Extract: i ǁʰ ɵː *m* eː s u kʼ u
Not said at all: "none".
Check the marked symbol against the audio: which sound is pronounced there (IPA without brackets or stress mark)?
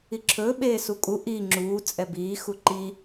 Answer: ɓ